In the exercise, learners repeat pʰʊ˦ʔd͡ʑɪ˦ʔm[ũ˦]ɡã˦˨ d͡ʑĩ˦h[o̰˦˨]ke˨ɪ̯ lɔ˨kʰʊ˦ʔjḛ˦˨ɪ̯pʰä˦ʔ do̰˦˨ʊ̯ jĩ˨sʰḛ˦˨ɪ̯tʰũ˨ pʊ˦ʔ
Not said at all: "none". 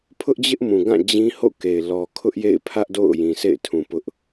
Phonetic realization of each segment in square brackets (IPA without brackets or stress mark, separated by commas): ũ˨, o̰˦˨